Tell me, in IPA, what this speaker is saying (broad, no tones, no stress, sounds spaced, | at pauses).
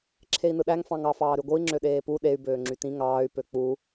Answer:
ǁʰ e i̯ n ɯ ɗ æ ŋ f ɑ̃ ŋ ɑ f ɑː ɾ y ɡʷ ɯ i̯ ŋ͡ǁ ø ɗ eː p u ɗ e y̯ b øː ŋ͡ǁ y t ĩ ŋ ɑː y̯ p ø k͡p u